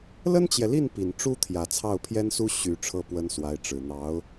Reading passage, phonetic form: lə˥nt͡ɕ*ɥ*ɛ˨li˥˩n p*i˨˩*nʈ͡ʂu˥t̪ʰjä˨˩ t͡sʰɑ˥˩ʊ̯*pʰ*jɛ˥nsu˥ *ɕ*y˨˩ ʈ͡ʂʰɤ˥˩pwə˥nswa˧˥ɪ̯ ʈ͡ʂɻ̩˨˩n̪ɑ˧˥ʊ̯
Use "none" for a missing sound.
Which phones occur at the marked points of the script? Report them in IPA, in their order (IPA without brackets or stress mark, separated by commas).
j, i˨˩, pʰ, ɕ